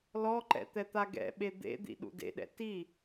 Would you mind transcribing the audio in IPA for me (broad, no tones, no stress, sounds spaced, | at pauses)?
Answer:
l ɔ ǃ ɛ̰ t̪ ɛ t̪ a ɡ ɛ̰ ɓ e d̪ ḛ d̪ ḭ ɗ ṵ d ḛ ɗ ɛ̰ t i